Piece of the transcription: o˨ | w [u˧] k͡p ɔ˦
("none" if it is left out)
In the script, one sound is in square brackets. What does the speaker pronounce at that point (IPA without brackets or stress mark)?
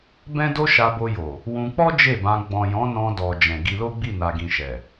ũ˧